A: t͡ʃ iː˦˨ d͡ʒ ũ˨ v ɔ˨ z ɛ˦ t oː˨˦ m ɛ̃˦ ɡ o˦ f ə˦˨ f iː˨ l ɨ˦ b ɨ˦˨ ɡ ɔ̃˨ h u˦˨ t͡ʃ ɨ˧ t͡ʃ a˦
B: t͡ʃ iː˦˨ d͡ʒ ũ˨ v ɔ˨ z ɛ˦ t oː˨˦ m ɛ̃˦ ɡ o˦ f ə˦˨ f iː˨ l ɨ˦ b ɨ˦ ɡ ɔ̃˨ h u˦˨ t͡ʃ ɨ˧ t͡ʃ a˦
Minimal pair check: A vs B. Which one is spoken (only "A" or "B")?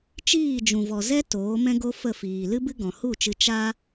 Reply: B